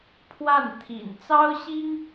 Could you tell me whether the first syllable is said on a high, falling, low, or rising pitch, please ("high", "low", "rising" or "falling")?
falling